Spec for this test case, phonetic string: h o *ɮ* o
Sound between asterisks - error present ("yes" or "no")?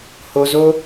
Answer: yes